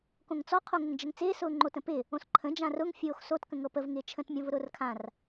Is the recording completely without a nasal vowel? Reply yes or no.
no